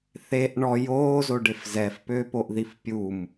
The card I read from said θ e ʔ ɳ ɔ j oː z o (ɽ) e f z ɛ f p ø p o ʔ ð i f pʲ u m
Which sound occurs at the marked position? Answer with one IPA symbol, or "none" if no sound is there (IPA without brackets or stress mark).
ɖ